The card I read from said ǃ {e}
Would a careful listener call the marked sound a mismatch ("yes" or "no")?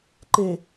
no